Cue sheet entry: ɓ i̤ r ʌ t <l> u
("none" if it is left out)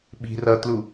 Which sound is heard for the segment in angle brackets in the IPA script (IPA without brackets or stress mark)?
l